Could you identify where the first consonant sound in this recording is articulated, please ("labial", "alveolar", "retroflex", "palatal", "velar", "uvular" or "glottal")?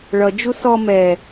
retroflex